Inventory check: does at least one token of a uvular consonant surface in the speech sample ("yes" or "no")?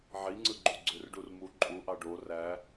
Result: no